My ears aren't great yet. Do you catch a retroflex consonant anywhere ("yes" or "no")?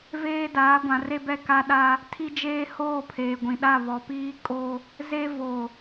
no